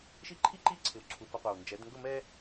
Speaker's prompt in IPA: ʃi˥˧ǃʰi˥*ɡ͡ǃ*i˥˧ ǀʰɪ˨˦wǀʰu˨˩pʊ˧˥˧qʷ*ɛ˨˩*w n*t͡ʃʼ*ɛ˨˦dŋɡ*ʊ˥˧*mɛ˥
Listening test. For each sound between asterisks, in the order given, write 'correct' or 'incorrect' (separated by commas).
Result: incorrect, correct, incorrect, correct